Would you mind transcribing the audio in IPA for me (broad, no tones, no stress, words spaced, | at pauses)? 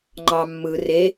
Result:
ŋ͡ǃɑ mːɯ re